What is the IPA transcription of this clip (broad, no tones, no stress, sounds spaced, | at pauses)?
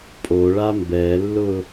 pʼ o ɭ a m b ɛ lː ʊ